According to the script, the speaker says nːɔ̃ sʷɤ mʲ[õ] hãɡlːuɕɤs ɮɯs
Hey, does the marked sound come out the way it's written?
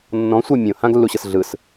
yes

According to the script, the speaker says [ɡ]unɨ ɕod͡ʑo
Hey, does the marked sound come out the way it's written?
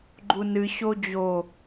no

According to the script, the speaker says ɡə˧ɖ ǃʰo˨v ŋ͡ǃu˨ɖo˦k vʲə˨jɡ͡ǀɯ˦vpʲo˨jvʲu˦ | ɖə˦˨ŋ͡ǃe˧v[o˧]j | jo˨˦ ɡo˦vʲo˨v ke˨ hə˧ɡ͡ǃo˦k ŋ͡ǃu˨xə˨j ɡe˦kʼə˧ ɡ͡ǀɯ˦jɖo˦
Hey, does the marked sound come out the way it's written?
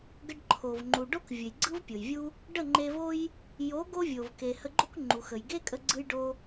no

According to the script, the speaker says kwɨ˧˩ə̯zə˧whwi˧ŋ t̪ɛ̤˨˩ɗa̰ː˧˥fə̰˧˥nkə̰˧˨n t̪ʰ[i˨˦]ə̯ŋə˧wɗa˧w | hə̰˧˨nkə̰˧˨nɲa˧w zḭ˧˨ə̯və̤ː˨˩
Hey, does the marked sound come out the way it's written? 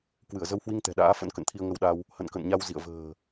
no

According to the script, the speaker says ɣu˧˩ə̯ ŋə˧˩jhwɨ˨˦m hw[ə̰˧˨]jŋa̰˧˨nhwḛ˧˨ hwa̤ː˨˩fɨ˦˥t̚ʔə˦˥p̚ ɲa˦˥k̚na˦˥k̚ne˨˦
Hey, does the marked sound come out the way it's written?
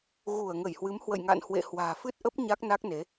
yes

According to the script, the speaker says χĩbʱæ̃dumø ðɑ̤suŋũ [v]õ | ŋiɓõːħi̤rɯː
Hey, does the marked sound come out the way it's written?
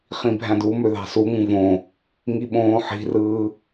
yes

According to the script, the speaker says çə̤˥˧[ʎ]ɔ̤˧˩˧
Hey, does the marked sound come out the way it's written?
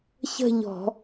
yes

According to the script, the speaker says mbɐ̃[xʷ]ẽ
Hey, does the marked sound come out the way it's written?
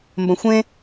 yes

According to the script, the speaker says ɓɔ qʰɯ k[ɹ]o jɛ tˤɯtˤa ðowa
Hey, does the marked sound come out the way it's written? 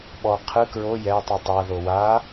yes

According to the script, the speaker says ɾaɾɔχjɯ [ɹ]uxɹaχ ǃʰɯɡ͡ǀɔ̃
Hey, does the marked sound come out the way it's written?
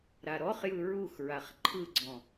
yes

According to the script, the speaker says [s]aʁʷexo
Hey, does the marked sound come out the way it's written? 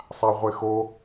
no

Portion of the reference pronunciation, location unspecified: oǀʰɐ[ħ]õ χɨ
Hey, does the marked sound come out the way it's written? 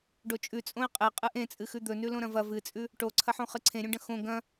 yes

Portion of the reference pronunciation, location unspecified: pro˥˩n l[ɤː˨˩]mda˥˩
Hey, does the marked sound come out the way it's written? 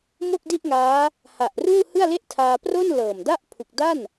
yes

